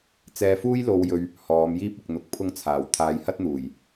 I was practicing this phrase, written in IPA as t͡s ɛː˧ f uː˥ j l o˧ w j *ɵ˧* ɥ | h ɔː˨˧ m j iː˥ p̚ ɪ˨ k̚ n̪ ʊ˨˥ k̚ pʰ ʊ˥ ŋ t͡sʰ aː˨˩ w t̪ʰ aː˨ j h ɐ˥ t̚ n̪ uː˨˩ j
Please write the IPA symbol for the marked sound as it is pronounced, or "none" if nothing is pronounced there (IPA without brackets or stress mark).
ɵ˧